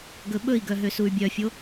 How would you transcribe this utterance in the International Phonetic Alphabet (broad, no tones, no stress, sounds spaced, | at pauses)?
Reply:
ɡ ɵ ɓ ɵ i̯ ɡ œ ɦ ø s u y̯ bʲ œ fʲ o